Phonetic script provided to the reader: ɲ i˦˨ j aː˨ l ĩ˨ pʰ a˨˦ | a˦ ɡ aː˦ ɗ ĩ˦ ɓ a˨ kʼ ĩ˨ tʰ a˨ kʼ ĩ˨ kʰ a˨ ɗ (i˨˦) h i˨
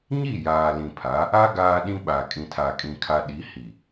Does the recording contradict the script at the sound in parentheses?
no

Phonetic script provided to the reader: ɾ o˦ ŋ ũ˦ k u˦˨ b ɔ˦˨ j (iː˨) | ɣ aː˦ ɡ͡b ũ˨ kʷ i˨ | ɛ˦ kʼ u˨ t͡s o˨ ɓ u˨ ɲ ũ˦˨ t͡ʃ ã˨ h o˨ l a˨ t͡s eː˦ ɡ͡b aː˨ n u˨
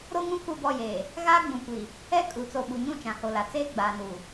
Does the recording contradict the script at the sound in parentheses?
yes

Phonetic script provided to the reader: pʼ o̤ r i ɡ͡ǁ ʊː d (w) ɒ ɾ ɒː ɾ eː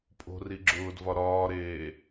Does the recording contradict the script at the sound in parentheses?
yes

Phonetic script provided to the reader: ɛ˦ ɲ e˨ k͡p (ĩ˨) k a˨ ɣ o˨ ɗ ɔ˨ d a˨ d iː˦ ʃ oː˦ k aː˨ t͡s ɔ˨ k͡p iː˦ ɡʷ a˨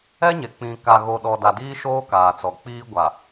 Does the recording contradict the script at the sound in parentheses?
no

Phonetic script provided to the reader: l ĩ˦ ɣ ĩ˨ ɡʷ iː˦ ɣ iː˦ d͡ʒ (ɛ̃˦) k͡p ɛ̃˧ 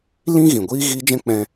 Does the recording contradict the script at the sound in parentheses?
no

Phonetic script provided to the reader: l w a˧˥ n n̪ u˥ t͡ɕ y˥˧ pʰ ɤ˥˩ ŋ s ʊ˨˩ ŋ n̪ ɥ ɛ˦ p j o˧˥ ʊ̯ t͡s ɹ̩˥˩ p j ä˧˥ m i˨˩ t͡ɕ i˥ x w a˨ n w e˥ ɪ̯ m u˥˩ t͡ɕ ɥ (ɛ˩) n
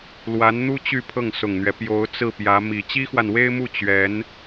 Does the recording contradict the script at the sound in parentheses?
yes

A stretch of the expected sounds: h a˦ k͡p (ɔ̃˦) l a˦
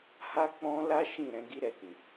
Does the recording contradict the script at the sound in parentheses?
no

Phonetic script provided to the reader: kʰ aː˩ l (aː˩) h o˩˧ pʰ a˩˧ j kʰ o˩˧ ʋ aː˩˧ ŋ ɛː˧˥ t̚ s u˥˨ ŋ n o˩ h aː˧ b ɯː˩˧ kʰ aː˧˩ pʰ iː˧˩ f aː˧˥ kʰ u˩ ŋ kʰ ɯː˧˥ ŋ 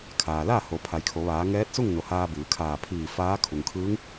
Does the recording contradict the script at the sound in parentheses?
yes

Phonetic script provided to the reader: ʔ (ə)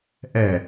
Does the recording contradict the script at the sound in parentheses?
yes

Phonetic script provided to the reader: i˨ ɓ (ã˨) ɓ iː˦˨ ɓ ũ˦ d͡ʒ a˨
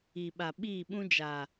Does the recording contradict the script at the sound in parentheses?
yes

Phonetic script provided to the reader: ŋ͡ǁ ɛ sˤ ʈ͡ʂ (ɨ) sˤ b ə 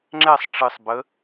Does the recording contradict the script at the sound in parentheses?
no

